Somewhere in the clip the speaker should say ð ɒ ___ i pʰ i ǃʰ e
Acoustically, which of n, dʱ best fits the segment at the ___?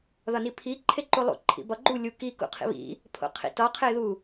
n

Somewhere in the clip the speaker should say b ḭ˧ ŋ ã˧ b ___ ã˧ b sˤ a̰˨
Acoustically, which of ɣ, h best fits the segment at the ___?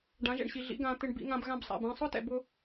ɣ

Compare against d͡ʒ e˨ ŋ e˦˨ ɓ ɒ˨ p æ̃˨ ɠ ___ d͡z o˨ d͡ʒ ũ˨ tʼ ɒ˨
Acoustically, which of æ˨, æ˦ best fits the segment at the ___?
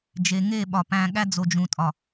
æ˦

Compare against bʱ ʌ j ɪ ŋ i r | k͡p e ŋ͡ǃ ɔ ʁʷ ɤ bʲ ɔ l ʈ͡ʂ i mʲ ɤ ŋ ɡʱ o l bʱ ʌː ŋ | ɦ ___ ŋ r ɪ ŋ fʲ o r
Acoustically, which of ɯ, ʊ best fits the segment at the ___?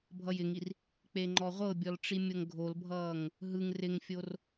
ɯ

